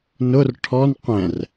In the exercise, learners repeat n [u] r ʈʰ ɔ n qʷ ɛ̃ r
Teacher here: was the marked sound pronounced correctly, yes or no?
no